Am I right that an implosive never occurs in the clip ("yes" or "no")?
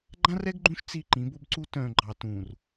yes